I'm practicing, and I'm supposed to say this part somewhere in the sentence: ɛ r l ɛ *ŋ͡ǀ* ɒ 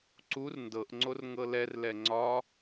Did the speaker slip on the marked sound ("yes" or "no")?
no